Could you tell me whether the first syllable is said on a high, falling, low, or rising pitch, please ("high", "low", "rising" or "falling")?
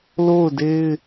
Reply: falling